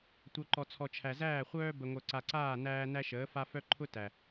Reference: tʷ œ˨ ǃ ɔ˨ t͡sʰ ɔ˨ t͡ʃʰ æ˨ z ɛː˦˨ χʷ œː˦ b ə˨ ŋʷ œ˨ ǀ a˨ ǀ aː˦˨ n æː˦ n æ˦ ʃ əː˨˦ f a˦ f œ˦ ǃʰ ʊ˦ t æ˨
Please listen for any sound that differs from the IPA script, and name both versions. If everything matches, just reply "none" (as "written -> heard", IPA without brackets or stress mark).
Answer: ɛː˦˨ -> æː˦˨